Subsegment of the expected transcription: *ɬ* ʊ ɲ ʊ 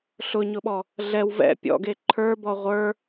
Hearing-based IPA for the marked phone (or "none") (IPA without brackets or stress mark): ɬ